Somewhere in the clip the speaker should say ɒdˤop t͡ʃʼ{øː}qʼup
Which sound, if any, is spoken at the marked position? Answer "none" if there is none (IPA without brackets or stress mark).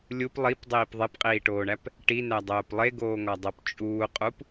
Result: uː